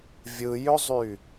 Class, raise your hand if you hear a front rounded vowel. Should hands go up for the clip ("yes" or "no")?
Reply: yes